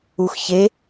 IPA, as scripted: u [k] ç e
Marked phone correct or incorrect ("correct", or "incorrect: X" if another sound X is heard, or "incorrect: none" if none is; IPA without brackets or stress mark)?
incorrect: x